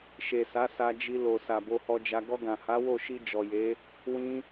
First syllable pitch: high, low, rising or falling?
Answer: low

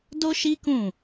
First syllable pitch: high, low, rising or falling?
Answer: high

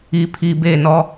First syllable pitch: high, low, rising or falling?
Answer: low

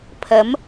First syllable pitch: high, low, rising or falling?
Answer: rising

